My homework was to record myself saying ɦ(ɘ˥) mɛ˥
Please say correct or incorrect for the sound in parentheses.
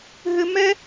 correct